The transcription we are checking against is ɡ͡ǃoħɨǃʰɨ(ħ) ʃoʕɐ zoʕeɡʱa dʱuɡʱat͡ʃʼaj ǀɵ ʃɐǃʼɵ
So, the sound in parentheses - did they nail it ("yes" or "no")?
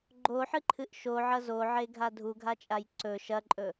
no